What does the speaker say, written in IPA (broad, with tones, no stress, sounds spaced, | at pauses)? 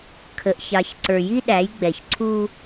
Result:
kʰ ə˨ ʔ ç ɑ˨ ç ǀ ə˞˨ j i˦ ɗ æ˨˦ j ɡ͡b ɛ˨ ç ǀʰ u˦